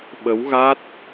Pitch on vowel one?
rising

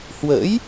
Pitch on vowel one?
rising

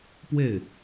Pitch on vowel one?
falling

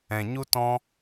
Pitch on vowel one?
low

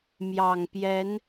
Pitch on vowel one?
low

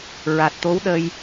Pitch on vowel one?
low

